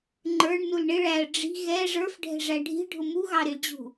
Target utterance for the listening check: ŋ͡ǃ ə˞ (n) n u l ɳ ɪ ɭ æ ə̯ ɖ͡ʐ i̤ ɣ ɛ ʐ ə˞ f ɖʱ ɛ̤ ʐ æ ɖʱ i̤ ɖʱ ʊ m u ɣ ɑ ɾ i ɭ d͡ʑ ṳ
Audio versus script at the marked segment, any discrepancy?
yes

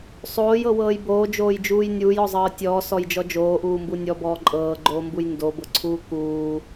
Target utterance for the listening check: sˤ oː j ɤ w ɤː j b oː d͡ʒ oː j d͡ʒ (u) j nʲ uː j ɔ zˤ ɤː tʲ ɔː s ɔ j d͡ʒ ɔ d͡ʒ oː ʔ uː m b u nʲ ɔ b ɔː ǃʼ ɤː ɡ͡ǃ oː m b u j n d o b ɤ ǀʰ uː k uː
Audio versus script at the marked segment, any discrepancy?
yes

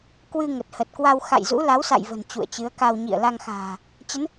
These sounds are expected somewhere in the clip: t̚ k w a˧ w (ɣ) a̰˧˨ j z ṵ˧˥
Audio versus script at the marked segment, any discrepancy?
yes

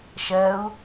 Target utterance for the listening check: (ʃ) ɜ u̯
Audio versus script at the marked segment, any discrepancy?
no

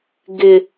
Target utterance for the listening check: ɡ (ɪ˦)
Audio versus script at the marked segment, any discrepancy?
no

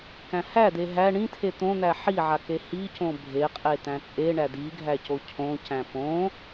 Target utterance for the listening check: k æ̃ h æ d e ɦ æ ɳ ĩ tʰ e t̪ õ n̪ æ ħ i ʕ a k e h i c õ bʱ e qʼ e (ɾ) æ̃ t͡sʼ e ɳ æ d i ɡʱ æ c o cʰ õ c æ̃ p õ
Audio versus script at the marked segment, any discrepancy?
yes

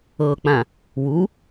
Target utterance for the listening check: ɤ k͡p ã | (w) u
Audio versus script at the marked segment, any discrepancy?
no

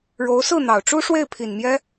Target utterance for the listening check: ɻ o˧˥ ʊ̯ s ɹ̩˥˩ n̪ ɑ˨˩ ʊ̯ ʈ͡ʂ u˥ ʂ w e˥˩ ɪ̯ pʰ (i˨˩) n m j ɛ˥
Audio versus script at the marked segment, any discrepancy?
no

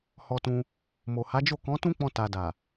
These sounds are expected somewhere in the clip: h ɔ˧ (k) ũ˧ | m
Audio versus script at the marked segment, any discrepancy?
yes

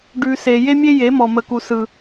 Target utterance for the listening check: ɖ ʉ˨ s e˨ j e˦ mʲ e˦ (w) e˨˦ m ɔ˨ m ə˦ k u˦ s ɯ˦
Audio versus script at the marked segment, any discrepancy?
yes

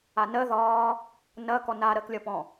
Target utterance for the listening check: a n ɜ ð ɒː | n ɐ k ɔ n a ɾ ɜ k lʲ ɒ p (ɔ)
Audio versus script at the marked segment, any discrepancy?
yes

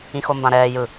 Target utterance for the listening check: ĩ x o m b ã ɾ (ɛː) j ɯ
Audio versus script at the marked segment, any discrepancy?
no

